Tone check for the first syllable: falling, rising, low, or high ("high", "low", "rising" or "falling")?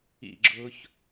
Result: falling